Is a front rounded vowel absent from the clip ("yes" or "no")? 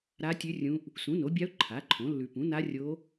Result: yes